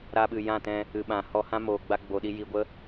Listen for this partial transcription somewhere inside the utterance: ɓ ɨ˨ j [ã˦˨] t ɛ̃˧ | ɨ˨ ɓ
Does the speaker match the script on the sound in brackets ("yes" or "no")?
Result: yes